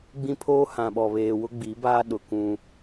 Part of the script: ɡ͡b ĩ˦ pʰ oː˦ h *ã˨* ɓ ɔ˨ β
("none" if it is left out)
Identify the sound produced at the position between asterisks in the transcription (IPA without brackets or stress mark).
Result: ã˨